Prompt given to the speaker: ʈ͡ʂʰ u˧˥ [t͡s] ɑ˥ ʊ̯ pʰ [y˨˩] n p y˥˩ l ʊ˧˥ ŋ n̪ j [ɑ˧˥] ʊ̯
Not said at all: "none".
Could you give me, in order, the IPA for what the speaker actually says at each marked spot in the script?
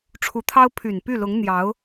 t̪ʰ, y˨˩, ɑ˧˥

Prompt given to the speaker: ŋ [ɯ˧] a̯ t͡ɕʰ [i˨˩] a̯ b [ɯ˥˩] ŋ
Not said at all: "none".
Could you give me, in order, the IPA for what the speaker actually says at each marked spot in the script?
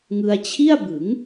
ɯ˧, i˥˩, ɯ˩˦

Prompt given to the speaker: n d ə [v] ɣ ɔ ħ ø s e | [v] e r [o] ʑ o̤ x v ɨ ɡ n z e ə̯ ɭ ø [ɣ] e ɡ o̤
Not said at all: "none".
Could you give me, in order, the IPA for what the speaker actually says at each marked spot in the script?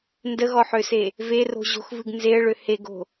none, v, o̤, h

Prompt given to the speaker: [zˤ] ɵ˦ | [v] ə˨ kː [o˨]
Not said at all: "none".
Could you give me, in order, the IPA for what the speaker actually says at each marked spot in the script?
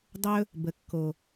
dˤ, b, o˨

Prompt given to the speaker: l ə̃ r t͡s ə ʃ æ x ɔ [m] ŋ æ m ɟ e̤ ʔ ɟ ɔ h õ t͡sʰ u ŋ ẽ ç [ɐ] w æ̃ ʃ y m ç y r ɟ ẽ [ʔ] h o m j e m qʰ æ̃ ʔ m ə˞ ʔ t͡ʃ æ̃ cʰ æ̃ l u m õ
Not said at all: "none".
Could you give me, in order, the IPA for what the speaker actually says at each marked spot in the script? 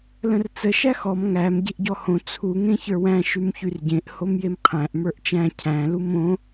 m, ə˞, ʔ

